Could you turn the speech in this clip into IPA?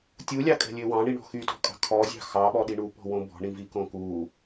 tʲ u lʲ ɑ kʼ ɛ̤ lʲ ø w ɑ̃ ɳ i ɳ ɔ̤ x y t ɔ̤ kʼ ɑ̤ kʰ ɔ zʲ ɑ̤ x ɑ ɓ ɔ ɗ i ɳ u p ɔ̤ w õ b ɔ̤ ɳ ĩ v i k õ k u

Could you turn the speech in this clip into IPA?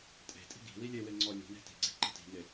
tʼ e̤ tʼ i̤ ɡ i̤ w i lʲ e w e ŋ͡ǀ ɔ lʲ ṳ n e̤ t i̤ ɡ͡ǀ i̤ ǃ ə̤ t i̤ ŋ e

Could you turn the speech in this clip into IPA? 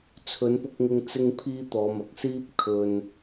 t͡sʰ ɵ˨˧ n p ʊ˧ k̚ ŋ ɪ˧ ŋ t͡s ɪ˥ ŋ pʰ iː˥ t̪ ɔː˨˧ m ɐ˨˥ k̚ s iː˥ p̚ kʰ ɵ˧ n

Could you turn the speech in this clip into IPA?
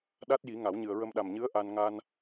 ɗ a˦˥ t̚ j i˨˩˦ ŋ a˨˩˦ w ɲ ɨ˨˩ ə̯ ɹ ə˧ m ɗ a˨˩ m ɲ ɨ˧˥ ə̯ ʔ a˧ n ŋ a˧ n

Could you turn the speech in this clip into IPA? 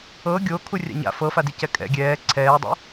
ɤ ɡʲ o kʰ u rʲ a̰ ɲ a̰ f ɤ f a d i c ɛ kʼ ɛ̰ ɡʲ ɛː ǀʰ ɛː dˤ ṵ

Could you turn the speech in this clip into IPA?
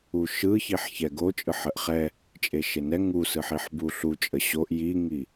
u ʃ ɯ ç i ħ ç ɛ ɡ o t͡ʃʼ ɯ ħ ə ʔ χ ɛ | t͡ʃʼ e ʃ e n ɛ ŋ u s ɯ ħ i ħ b u ɬ u t͡ʃʼ ə ɕ o ʔ j i ŋ i

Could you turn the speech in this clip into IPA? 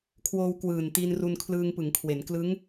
kʰ w oː˧ w k w ɯː˨˩ n t i˧ n r u˧ n kʰ l ɯː˧ ŋ p ɯ˩˦ ŋ kʰ w e˩˦ n k l ɯ˦˥ ŋ

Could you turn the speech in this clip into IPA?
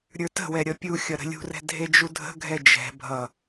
ɾʲ ə˞ t ə̤ w ɛ ɾʲ ʌ pʲ u xʲ ʌ ɾ ə̤ lʲ ṳ r ɛ̤ dʱ e d͡ʒ u dʱ ə̤ ɡʱ ɛ d͡ʒ ɛ̤ bʱ ʌ

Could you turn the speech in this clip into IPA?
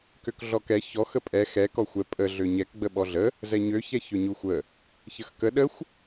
k ø k ɮ ɔ k ɛ ç ɔ x ə pʼ ɛ x ɛ k ɔ xʷ ɛ pʼ ə ɮ ø ɲ ɛ k ɡ͡b ə ɓ ɔ ɮ ə | z ɛ ɲ ø ç ɛ ç ø ɲ u xʷ ə | ç ə x k ə ɗ ə xʷ

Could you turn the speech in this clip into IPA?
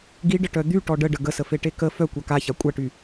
ɡ i ɖ ə ʈ œ d̪ y ʈ ɔ ɖ ə ɖ ə ɡ ə s ə f e ʈ e k ə f œ kʷ a k a ç a kʷʼ a ʈ y

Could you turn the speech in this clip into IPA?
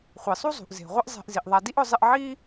χʷ i˩ sˤ u˦ zˤ ṳ˩ ʔ z e̤˩ ʁʷ ɪ˦ ʔ zˤ e̤˨ ʔ z i˩ ʔ ðˤ a˨ d i˥ ʔ ʊ˦ zˤ ɪ˦ ʔ ʕ i˥

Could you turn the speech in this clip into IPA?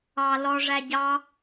ɑ l ɔ ʐ æ ɟ ɑ

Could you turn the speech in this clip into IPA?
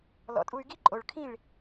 l ɔ̰˩˥ tʼ u˧ y̯ ɡ i˥ ǃʼ o˩ ɭ kʰ ĩ˥˩ ɭ

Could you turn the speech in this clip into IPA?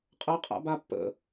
qʼ ɐ qʼ a̰ b a pː ə̰

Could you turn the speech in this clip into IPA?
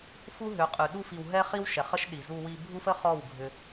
f u˦ ɦ ʏ˨˦ qʼ y˨ ɗ u˧ f i˨ w ɦ ɛ˦ χ i˦ w ʃ ɛ˨ χ ə˦ ʃ ɗ i˨ z u˧ w i˧ bʱ u˦ f ə˦ χ ɔ˦˨ w ɡʱ ʏ˧

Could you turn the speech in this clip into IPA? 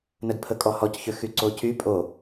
n ə d pʰ ə kʼ ɔ h ɔ c ç ø x y ǀ o c y pʼ o

